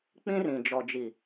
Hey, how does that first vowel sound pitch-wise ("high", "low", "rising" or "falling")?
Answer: high